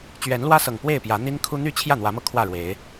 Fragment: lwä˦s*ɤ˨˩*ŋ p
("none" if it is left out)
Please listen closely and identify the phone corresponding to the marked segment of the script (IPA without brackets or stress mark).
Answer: ɤ˨˩